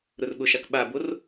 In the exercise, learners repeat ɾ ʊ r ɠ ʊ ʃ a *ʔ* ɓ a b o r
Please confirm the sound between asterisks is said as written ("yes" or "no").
no